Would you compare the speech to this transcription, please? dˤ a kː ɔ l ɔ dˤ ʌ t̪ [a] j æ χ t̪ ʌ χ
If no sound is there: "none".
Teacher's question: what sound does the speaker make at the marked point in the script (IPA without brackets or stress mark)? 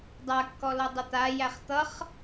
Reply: a